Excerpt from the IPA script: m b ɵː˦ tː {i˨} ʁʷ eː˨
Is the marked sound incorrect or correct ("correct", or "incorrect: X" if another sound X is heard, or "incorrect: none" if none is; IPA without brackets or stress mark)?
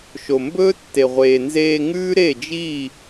incorrect: e˨